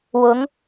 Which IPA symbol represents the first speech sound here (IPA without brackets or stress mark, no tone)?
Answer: w